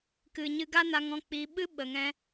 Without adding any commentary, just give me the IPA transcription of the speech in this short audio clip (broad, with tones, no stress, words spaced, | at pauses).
kɨ˨ ɲɨ˧ɡa˦na˧ŋ ɔ̃˦˨k͡piː˧ ɓɨ˦ɓə˨ŋɛ̃˧